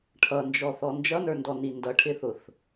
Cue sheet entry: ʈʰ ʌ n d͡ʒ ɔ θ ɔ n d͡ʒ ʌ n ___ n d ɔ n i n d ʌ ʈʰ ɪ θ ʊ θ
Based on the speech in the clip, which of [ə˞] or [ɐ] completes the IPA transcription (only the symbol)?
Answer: ə˞